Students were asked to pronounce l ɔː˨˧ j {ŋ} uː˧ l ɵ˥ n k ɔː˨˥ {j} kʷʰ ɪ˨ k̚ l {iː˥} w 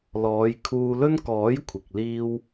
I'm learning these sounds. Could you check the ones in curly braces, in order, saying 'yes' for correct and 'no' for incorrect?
no, yes, yes

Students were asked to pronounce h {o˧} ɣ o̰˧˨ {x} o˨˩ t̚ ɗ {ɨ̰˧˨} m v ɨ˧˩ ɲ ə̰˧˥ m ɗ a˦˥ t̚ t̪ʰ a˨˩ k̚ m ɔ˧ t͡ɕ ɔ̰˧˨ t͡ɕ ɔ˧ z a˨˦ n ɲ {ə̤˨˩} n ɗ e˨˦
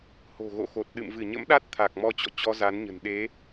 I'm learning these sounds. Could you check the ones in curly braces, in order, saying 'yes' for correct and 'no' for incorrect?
no, yes, yes, yes

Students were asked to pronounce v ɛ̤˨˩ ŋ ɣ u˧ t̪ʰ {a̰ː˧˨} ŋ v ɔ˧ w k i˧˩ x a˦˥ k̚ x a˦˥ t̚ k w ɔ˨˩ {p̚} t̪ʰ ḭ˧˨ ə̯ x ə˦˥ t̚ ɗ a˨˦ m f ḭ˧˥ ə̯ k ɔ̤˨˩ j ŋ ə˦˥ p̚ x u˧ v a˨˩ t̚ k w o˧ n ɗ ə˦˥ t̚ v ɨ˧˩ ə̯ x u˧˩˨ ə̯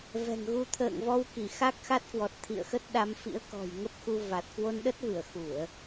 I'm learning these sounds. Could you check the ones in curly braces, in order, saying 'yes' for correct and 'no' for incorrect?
no, no

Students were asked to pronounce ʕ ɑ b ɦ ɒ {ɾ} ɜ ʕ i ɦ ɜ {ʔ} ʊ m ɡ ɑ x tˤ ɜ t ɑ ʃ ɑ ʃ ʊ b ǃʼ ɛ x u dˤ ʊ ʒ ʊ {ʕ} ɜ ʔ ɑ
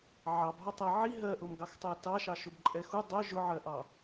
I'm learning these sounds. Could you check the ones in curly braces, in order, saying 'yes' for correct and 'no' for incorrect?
no, yes, yes

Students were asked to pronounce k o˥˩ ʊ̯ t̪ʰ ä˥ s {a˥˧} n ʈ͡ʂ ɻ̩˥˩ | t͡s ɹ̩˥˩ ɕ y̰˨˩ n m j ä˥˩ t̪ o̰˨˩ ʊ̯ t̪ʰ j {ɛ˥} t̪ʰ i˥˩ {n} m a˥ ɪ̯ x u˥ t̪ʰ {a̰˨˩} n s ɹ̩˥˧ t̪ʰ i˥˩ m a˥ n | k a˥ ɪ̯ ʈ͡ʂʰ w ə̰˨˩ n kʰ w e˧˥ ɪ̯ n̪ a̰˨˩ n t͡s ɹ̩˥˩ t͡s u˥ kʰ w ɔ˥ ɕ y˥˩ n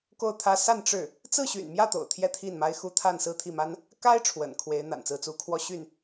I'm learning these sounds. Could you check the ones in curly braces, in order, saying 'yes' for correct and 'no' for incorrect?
yes, no, yes, no

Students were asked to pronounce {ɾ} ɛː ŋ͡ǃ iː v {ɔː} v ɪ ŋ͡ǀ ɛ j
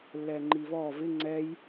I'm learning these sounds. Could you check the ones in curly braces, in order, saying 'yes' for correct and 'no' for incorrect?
no, yes

